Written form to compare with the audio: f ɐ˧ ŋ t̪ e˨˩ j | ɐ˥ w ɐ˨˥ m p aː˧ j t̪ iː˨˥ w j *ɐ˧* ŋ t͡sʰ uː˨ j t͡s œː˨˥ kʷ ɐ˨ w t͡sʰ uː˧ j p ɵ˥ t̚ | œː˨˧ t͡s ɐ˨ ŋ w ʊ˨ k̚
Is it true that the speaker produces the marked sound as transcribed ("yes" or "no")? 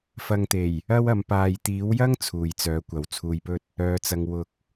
no